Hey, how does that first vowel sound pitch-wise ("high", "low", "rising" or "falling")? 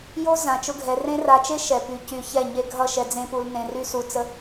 high